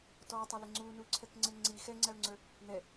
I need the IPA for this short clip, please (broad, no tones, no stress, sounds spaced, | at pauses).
t ɔ tˤ ə l ɪ ŋ͡ǀ u n u ǀʰ ɛ k ŋ͡ǀ ɪ ŋ͡ǀ i x ɛ ŋ͡ǀ æ ʊ̯ ŋ͡ǀ ə˞ | n ɛ